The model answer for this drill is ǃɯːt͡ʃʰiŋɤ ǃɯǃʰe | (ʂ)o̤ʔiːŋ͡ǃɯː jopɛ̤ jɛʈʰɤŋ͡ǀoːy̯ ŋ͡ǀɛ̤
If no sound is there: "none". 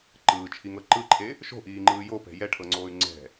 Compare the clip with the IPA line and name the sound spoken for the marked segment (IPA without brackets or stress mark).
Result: ʃ